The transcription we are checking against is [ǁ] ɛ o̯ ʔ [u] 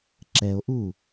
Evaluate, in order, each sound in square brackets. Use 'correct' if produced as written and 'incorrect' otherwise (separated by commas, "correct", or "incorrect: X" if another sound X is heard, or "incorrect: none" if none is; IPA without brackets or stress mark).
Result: correct, correct